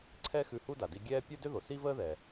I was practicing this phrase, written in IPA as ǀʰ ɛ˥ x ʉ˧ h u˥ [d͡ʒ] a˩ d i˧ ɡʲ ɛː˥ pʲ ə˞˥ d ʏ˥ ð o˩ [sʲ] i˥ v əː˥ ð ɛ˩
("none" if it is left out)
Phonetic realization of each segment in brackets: d, s

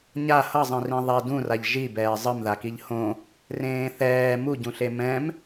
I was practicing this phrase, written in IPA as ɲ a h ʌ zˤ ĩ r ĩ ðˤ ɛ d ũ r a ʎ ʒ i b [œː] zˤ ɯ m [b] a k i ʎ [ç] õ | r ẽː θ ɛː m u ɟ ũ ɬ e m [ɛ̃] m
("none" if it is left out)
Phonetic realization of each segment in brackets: ɛː, ð, h, ɛ̃

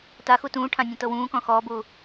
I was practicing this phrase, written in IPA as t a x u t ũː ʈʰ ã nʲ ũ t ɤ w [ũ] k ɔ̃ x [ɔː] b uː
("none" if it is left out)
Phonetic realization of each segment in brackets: ũː, ɔː

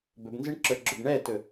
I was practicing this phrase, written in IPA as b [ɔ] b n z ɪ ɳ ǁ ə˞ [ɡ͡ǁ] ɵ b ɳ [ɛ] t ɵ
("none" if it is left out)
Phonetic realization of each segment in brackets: ɵ, ɡ͡ǁ, ɛ

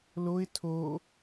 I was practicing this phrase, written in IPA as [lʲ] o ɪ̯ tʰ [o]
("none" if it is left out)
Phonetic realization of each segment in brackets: l, o

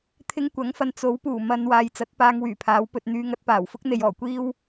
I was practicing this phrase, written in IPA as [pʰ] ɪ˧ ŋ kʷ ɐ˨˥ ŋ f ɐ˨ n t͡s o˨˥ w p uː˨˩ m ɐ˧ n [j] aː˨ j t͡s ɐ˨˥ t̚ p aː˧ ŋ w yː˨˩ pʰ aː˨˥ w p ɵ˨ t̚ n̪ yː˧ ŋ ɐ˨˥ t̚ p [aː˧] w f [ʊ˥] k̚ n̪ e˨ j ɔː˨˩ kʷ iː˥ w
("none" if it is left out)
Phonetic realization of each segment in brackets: t̪ʰ, w, aː˨˩, ʊ˥

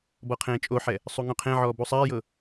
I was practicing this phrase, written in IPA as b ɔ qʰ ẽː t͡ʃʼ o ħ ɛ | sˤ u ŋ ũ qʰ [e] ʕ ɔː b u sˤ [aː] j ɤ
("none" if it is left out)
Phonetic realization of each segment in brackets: ẽ, aː

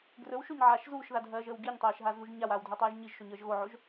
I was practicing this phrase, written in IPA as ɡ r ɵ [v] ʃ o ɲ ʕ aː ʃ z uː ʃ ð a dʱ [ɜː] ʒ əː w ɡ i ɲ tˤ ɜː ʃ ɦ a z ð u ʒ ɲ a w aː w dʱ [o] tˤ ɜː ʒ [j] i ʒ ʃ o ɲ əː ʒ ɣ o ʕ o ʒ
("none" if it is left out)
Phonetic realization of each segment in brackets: w, ɜː, ɵ, ɲ

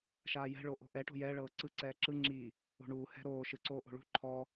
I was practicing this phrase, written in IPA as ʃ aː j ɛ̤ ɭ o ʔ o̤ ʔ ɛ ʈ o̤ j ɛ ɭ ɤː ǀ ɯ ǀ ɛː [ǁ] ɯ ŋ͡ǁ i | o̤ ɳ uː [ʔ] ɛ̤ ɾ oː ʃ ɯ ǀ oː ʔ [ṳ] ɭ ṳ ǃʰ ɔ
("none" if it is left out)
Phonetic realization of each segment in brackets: ǁ, h, o̤

